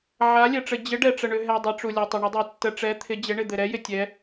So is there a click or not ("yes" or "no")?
no